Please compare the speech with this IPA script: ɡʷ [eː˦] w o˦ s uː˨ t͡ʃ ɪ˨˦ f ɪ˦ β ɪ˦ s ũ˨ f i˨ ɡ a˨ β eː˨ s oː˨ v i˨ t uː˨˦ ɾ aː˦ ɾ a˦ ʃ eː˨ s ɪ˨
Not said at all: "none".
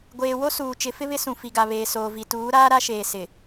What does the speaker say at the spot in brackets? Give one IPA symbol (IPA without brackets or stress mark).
eː˨